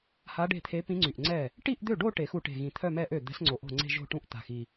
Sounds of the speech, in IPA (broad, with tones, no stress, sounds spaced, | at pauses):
h a˧˥ ɖ e̤˥˩ t̪ʰ e˧˥ p ĩ˧˥ ŋ͡ǀ y˨˩ ʔ ŋ͡ǀ ɛ˥˩ | ʈ i˥˧ ʔ d̪ ø˥˩ ɖ o˥˧ ʈ e˨˩˦ x u˧ ʈ e̤˨˩ ɣ ĩ˨˩ t̪ʰ œ˥˧ m ɛ˥˧ ʔ ø˥˩ d̪ ɛ̤˧˥ s ŋ͡ǀ o˨˩ ʔ o̤˥˩ ŋ͡ǀ e̤˥˧ ʒ o̤˥˧ ʈ ũ˥˧ ʔ t̪ a̤˧ x i˧